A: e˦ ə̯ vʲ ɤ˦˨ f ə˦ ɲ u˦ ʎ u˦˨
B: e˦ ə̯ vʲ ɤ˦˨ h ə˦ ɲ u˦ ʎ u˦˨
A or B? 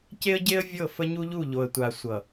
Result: A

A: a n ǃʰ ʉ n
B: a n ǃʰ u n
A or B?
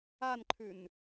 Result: A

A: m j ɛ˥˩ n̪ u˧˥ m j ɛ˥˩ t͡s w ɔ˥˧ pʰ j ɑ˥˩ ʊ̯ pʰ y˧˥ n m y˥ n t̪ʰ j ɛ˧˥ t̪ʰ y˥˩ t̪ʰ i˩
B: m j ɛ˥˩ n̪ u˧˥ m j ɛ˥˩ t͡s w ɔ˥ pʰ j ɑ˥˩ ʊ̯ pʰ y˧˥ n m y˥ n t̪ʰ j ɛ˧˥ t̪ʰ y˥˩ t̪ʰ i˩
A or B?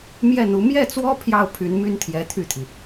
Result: B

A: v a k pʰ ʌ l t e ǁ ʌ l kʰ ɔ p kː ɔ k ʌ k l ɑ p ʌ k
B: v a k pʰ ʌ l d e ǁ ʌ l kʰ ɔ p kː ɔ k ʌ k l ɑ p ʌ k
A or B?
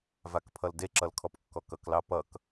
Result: B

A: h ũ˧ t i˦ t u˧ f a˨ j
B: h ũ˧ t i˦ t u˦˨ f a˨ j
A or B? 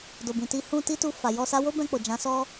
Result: A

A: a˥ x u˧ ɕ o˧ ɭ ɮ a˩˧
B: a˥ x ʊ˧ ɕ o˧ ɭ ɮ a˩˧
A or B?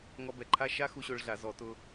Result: A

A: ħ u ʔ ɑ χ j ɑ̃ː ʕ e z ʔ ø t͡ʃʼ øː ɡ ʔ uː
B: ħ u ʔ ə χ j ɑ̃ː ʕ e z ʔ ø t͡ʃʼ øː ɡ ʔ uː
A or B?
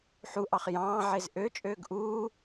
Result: A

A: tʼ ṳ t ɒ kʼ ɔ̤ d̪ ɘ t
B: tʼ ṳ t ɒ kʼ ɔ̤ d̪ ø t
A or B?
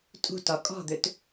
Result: B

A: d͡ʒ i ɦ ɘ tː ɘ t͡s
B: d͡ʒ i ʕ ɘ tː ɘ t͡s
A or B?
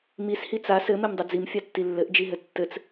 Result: A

